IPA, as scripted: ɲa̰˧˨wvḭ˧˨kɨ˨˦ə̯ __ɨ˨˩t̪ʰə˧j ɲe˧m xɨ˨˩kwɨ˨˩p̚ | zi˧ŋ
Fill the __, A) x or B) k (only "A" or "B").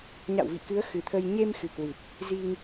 A